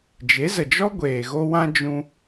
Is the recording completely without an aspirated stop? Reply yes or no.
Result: yes